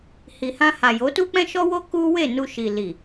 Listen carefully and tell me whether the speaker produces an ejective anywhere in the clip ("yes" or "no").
no